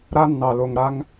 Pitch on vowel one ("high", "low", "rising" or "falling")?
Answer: high